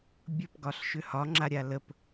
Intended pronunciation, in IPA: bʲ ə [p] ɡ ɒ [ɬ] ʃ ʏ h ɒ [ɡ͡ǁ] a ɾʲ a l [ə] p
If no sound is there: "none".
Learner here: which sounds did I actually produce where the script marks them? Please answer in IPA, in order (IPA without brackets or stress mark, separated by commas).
p, ɬ, ŋ͡ǁ, ə